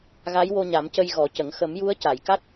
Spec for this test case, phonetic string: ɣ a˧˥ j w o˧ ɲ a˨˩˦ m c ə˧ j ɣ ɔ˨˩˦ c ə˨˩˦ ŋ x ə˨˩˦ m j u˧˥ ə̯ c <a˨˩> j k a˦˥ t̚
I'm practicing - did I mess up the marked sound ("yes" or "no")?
yes